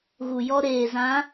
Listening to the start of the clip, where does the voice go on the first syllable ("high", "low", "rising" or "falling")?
low